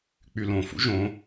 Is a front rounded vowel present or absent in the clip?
present